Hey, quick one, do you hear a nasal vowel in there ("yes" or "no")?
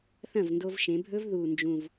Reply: yes